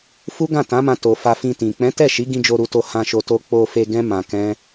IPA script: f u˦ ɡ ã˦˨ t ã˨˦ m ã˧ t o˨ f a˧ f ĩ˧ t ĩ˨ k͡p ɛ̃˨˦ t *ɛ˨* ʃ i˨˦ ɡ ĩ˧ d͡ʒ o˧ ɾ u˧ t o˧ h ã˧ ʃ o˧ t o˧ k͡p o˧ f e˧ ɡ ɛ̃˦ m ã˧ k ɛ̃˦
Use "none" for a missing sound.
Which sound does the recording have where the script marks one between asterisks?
ɛ˦˨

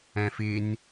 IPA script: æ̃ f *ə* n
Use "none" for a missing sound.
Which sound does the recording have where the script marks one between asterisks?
ɪ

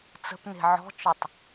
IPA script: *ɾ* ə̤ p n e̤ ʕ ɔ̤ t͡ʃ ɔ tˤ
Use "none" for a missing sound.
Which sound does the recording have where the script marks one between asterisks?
t͡s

